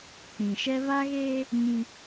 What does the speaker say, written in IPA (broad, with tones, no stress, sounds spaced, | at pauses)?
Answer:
k͡p ĩ˨ ʃ ɛ˦ β a˦ ɣ eː˦ | ɲ ĩ˦